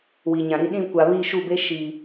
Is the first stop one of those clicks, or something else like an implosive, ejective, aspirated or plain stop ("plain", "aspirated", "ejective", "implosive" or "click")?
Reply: implosive